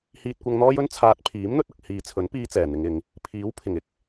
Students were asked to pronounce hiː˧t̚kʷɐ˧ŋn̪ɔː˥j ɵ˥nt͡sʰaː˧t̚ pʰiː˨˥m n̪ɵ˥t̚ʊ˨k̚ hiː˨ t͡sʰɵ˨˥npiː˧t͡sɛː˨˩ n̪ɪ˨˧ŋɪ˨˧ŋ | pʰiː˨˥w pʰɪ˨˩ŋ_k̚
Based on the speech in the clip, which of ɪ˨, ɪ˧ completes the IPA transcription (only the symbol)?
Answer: ɪ˨